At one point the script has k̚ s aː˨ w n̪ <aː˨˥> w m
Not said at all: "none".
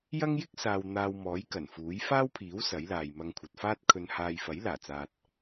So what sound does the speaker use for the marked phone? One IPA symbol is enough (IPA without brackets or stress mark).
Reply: aː˧